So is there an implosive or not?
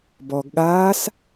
yes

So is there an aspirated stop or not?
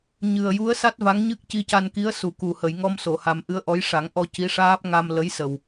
no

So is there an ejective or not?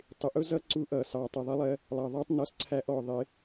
no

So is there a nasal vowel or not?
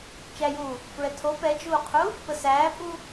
no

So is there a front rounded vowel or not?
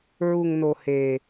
no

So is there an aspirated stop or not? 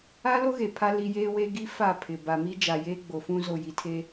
yes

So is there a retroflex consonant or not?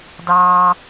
no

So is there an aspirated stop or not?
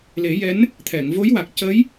yes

